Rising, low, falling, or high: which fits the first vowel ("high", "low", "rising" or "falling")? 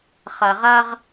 low